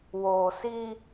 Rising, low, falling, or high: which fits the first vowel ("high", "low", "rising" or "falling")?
low